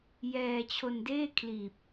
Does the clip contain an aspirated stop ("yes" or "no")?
yes